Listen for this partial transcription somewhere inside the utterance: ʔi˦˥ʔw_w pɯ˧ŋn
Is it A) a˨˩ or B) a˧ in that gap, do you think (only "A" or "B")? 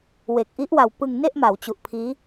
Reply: B